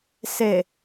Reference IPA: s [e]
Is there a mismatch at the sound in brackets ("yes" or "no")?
no